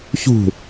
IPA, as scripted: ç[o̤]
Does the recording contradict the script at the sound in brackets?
yes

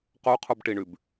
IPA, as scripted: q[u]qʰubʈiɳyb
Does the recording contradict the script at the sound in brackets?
yes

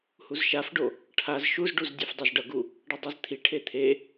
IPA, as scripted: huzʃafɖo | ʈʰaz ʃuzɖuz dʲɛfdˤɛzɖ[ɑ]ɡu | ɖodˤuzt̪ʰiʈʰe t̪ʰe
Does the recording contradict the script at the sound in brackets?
yes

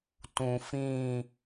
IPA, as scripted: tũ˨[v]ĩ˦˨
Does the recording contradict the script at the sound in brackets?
yes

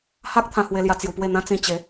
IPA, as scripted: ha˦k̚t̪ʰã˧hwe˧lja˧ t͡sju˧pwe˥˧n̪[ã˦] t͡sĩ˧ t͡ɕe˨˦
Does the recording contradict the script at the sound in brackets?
no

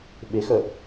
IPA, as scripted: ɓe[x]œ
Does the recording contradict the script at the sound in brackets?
no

